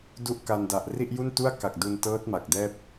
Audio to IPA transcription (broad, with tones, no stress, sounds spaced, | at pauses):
d u˥˩ ʔ k a˧ n d a˨˩ ʔ r i˥˩ ʔ j u˥˩ n t u˥˩ a̯ k a˨˩ k̚ d u˧ n t ɤː˦˥ t̚ m a˨˩ k̚ d ɛː˥˩ p̚